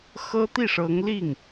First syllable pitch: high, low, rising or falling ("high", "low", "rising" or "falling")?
high